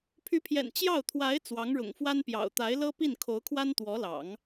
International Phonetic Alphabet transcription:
pʰy˧˥pʰjɛ̰˨˩n t͡ɕjɑ˥˩ʊ̯ t̪ʰwa˧˥ɪ̯ t͡swɑ˧˥ŋɻʊ̰˨˩ŋfwa˥npjɑ̰˨˩ʊ̯ t̪a˧˥ɪ̯lɤ˥pi˥˩n kʰo˧˥ʊ̯kʰwa˥nt̪wɔ˧˥lɑ̰˨˩˦ŋ

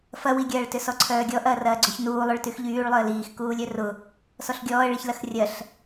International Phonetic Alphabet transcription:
fɐwiɡʲɐːɭtʏ sɔǀʰœːɡʲɔ ʔɐːrɐːɡ͡ǀʏç nuːlˠœɭ tyxʎyːɭ lˠʏə̯liːx kuːlʲœrʊ | sɔɬɡʲɔːə̯ɭiçlɐx rʲɐɬ

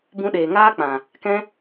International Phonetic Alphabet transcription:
bũ˧ɗeː˨ŋaː˦k͡pã˨ | kɛ̃˦

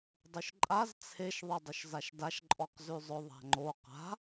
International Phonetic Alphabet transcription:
dˤʉʃǃʼaz t͡sʰeʃ ðˤedˤʊʃzaʃdaʃ ǃʼɔqzʉzˤʊ ðˤa̤ŋ͡ǃo qa̤

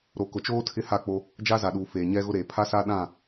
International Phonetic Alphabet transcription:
ɾo˨kʊ˨t͡ʃoː˦ tʰɪ˦ha˦˨k͡po˦ | d͡ʒa˦za˨ɗuː˨ feː˨ɲɛ˦ɣʊ˦ɾeː˨ pʰa˦sa˦ ɗã˦˨

